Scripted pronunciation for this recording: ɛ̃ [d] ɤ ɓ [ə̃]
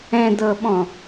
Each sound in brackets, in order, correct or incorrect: correct, incorrect: ɔ̃

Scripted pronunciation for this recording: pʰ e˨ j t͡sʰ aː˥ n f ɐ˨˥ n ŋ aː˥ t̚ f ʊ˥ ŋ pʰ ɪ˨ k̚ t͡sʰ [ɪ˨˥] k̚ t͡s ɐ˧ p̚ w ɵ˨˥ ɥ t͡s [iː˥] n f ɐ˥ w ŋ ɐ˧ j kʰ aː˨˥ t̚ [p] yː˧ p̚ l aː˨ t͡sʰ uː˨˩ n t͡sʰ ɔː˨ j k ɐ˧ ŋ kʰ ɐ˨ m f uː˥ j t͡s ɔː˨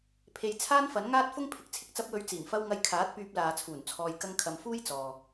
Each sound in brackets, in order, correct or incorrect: incorrect: ɪ˧, incorrect: iː˨˩, correct

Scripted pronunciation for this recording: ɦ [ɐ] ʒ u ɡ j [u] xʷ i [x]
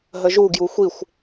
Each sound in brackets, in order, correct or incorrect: incorrect: ə, correct, incorrect: xʷ

